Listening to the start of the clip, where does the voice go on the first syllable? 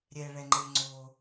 low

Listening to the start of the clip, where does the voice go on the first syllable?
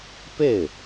falling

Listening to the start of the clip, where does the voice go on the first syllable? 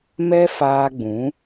high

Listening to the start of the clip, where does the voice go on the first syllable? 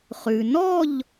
low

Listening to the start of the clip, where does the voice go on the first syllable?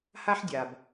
high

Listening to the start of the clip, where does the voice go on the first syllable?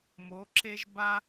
rising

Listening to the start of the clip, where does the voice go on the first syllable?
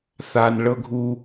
low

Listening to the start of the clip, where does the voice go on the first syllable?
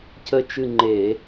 falling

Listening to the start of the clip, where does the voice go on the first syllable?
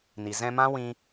low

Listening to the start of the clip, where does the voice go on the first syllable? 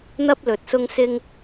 high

